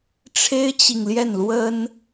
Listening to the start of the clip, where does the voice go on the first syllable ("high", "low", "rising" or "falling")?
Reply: high